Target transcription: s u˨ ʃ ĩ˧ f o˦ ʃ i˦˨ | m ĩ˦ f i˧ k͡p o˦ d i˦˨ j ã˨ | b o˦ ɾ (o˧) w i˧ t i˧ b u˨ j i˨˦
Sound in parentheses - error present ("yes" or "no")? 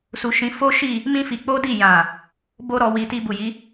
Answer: yes